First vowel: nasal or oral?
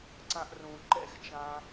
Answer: nasal